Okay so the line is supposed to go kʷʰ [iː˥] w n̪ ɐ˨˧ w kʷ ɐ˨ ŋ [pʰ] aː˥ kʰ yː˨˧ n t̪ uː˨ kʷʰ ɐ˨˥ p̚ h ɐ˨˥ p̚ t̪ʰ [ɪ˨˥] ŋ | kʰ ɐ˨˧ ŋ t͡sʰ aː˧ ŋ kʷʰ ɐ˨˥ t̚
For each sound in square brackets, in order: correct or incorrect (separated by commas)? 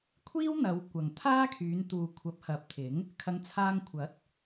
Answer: correct, incorrect, correct